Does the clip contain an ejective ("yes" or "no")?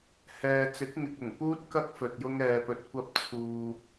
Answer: no